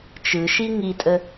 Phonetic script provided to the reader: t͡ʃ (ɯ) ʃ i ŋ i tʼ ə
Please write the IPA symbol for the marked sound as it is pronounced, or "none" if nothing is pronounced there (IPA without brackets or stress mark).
ɯ